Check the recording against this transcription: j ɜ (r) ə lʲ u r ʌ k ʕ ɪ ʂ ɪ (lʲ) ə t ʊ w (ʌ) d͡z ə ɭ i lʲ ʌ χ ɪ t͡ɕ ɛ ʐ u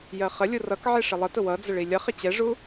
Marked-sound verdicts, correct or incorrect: incorrect, incorrect, correct

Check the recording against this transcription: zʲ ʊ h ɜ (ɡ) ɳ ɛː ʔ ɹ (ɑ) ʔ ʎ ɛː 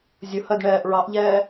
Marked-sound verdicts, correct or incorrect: incorrect, correct

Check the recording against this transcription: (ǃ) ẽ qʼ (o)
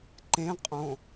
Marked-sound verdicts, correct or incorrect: correct, incorrect

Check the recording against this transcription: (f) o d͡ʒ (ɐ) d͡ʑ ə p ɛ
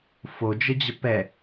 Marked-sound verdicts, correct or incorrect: correct, incorrect

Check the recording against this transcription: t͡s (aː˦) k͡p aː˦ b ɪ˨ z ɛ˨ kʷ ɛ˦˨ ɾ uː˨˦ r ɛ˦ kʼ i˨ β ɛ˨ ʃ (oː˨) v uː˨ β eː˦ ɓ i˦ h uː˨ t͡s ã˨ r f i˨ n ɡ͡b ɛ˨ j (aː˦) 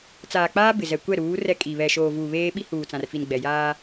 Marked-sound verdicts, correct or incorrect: incorrect, correct, correct

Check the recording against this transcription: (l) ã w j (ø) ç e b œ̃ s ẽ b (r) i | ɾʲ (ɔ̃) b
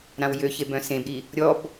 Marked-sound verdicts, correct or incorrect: incorrect, correct, incorrect, incorrect

